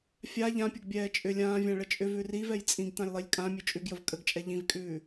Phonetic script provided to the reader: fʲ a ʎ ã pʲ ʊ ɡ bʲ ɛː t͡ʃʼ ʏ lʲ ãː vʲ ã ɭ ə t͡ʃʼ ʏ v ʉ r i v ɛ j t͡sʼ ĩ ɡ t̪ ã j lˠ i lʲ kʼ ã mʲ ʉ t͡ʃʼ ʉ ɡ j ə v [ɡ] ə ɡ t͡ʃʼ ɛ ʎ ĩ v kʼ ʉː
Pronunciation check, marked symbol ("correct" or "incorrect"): incorrect